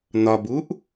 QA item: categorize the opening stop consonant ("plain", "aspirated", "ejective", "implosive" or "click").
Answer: plain